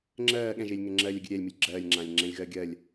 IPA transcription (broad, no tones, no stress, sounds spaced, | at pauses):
ŋ͡ǁ ɜː ɠ ɛ̃ ʒ eː lʲ ŋ ɛ ŋ͡ǁ ɜː lʲ ɜ ɡʲ ɨ ɾʲ ɛː lʲ m ɨ lʲ ɡ͡ǁ ɜː lʲ ŋ͡ǁ ãː lʲ ŋ͡ǁ ɛ̃ lʲ ɣ ɜː ɡʲ ɜ lʲ